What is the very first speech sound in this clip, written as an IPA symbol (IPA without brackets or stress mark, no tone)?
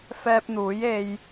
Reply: f